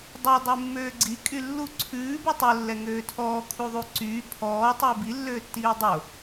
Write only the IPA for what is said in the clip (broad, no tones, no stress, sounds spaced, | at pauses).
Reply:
dˤ œ dˤ ʉ mː øː ɡ͡ǀ i kʼ y lː u ǀʰ ʉː b u tˤ ɵ lː ɛ ŋ øː tʰ ɔː kʰ u ðˤ u ǀ yː pʰ ɔː tˤ u b i lː øː tː iː dˤ o